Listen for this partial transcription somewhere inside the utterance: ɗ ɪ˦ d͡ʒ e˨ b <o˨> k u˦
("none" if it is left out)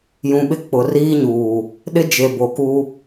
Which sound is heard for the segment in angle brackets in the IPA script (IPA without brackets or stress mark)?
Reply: o˨